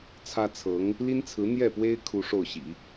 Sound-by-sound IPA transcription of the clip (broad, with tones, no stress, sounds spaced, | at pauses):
t͡sʰ ä˥ t͡sʰ ɤ˧˥ ŋ | l i˥ n t͡sʰ ɹ̩˧˥ n̪ j ɛ˥˩ p w e˥ ɪ̯ kʰ u˥ ʂ o˥˩ ʊ̯ ɕ ḭ˨˩˦